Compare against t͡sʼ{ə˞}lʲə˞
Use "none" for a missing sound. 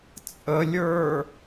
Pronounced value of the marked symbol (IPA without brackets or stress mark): ə